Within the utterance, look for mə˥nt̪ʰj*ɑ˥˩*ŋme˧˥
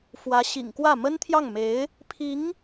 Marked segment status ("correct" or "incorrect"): correct